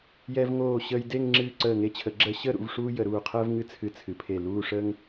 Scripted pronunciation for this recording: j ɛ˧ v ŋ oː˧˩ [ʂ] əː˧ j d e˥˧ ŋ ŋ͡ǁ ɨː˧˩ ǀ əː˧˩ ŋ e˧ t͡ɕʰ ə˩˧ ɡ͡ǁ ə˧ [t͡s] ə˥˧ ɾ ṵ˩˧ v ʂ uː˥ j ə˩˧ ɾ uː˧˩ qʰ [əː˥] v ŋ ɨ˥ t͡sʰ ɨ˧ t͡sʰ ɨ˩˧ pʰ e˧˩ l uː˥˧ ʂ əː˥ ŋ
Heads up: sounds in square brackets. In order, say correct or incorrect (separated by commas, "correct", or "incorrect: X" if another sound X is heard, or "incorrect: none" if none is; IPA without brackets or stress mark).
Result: incorrect: ɕ, incorrect: ɕ, correct